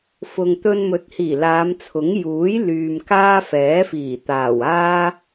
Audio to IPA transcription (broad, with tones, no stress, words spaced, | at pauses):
fʊ˨ŋ t̪ɵ˧nmɵ˨˥t̚hiː˨˩ laː˨˧mt͡sʰʊ˨˥ŋ juː˨˥j lyː˨mkaː˥fɛː˨˥fiː˨˩ t̪aː˨˩waː˥